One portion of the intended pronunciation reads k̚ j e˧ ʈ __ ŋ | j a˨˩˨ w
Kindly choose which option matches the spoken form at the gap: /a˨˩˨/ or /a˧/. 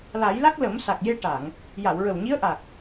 a˨˩˨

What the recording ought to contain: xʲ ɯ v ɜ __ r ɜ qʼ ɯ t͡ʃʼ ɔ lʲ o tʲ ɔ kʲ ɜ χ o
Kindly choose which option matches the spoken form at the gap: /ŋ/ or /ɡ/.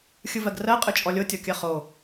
ɡ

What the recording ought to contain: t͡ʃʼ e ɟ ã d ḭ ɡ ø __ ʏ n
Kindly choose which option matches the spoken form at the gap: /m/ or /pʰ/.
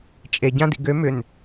m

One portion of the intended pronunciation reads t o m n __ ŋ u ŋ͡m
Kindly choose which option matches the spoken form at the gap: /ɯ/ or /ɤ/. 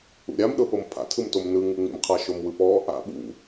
ɯ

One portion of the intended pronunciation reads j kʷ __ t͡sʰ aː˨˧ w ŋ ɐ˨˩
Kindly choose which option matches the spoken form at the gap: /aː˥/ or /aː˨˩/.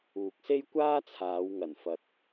aː˥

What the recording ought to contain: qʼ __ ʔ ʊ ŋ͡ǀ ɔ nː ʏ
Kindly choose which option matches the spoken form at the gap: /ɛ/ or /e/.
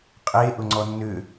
e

